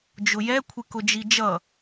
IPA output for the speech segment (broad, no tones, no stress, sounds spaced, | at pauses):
d͡ʒ ʊ j ɛ kʷʰ ɪ k ʊ d͡ʒ i d͡ʒ ʌ